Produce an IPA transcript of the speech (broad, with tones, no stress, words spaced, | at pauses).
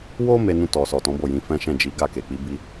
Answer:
wo˦ me˧nũ˧tɔ˨ sɔ˨tɔ̃˨˦bo˦˨jĩ˧ fɛ̃˦ʃɛ̃˦˨d͡ʒi˨˦ ɡa˦˨ke˨k͡pi˨˦bi˦